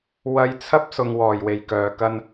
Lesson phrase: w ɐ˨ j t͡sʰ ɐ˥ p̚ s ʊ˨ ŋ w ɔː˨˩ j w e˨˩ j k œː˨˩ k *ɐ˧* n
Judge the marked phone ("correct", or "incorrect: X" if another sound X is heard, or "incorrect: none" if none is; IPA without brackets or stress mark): correct